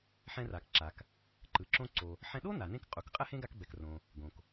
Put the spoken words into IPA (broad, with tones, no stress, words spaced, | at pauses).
ħɛ̃˧ra˩kǁa˩k | ǃɯ˩ǁõ˧ ǀo˩ | ħɛ̃˧ɗo˥na˩nẽ˧k qʼu˩kqʼɛ˥hẽ˥ ɡa˧kbɛ˩krõ˩ | ɡõ˩k